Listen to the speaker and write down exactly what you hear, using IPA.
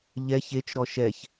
ʎɛç et͡ʃɾɔ ʃɛç

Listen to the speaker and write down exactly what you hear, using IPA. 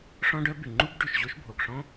ʂɔ̃˥ɖœ˥ by˩ŋ͡ǃu˥b ɖʉ˩ʃʑo˥ʃbʱo˩ɡʂɔ̃˥

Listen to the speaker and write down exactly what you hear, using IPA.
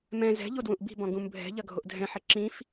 mɛ̃ zɛ̤ ʎodwũʔbi̤bɔ̃ ɡũmbʱɛ̤ʎɐ ɡʱoʔdʱɛ̃ħɘ ǁĩf

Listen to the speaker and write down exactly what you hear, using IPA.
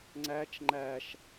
ŋ͡ǀæt͡ʃ ŋ͡ǃæʃ

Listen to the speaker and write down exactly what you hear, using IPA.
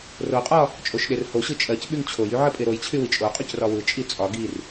roqʼɒ | t͡ʃʼoʃɗerhoɕɯ t͡ʃʼɜc ɓyŋt͡ɕʰojy ʕɜpʼeɾojt͡ɕʰy wit͡ʃʼoqʼyc rɒwɯt͡ʃʼi t͡sʼɒ ɡir

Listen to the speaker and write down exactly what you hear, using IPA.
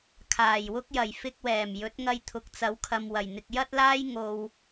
kʰaː˨˩jwʊ˥k̚jɐ˨˩j fɪ˧k̚wɛː˨˩m jɵ˨˥t̚ŋɐ˧jt̪ʰʊ˨k̚ t͡sɐ˨˥wkʰɐ˨mwɐ˨˩j n̪ɪ˨k̚jɐ˥t̚laː˥j ŋo˨w

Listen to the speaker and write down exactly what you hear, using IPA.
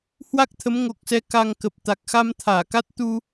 hwa˦˥k̚t̪ʰə˨˦mŋo˨˩k̚sɛ˧ ka˧ŋ kə˨˩p̚ t̪a˨˩k̚xa˧m t̪ʰaː˧˩ka˦˥t̚t̪u˧

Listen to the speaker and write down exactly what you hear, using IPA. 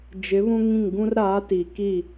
d͡ʒɪ˨˦ βũ˦ŋĩ˦˨ŋ ɡũ˦r ɾaː˨˦ti˨ki˦˨

